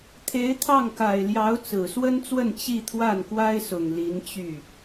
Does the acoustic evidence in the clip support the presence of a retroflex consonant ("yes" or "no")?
no